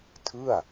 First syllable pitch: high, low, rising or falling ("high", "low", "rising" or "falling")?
falling